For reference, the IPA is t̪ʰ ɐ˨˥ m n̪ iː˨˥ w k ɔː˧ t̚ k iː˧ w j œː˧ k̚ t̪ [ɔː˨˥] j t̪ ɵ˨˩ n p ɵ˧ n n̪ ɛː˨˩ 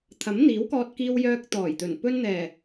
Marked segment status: incorrect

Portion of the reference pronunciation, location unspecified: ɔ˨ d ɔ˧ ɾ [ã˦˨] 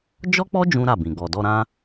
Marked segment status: incorrect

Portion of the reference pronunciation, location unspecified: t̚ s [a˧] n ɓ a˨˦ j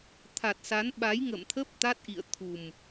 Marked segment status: incorrect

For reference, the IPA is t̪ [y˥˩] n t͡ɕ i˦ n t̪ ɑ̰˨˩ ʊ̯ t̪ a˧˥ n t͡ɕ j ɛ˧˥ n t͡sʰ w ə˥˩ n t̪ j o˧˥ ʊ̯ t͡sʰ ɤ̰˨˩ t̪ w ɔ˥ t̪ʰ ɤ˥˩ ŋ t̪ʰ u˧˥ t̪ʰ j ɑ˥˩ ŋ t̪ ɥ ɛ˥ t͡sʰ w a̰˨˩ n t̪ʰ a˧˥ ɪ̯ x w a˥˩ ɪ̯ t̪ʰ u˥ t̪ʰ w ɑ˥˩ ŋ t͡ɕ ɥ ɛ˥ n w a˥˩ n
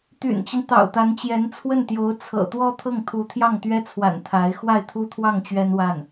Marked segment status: incorrect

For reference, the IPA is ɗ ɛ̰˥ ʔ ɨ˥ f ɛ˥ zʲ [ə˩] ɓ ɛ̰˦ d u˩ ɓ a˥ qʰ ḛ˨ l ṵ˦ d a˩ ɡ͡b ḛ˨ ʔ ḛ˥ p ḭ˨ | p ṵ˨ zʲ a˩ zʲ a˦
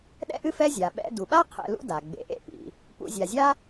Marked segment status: incorrect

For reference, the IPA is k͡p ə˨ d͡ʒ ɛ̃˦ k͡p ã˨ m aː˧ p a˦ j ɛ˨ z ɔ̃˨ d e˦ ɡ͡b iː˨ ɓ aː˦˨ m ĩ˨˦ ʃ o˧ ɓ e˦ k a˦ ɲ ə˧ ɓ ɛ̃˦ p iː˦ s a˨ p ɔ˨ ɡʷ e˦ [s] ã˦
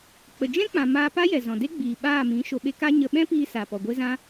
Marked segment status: incorrect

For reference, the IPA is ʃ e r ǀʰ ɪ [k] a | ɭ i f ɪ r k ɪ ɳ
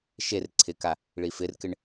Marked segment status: correct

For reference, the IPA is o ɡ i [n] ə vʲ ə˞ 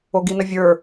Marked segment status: correct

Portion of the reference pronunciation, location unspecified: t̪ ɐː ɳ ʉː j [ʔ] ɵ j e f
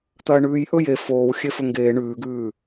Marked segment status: correct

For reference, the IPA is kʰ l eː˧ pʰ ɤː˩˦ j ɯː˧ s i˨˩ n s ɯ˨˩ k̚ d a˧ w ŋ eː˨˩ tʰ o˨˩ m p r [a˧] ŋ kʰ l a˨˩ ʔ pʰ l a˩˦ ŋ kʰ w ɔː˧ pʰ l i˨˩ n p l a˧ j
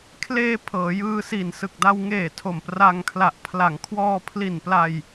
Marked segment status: correct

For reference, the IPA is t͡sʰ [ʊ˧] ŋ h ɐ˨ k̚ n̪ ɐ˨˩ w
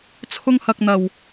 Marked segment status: correct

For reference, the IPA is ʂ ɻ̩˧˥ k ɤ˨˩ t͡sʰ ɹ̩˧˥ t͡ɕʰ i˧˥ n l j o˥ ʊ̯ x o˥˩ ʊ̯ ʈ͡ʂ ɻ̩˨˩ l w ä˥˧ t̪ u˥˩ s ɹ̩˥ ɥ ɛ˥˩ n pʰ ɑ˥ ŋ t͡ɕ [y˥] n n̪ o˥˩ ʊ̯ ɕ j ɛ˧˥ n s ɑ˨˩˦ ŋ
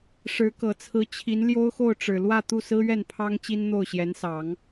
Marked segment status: incorrect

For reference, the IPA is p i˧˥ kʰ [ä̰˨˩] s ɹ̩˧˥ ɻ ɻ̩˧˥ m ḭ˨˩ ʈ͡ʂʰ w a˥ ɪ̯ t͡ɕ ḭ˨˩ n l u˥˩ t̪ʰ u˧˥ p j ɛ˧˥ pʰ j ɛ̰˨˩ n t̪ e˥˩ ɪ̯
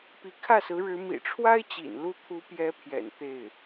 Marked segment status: incorrect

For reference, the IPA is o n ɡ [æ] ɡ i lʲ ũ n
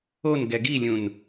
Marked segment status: incorrect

